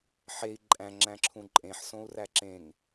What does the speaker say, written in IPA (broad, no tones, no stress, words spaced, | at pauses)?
ħei̯ ǃʼæ̃ŋ͡ǁæ̃ǁʰũ ǃʼẽħsõu̯ræ ǁẽŋ